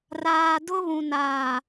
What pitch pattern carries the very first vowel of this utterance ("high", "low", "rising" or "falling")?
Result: low